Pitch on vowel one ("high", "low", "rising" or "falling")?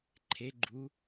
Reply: rising